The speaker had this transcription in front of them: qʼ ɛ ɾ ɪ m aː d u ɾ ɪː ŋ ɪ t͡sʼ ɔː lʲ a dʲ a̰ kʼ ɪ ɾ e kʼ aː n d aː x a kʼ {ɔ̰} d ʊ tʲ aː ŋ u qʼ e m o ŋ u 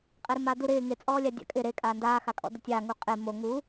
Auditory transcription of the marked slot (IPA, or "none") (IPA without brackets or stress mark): ɔ̰